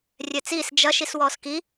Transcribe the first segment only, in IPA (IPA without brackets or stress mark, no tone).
rʲ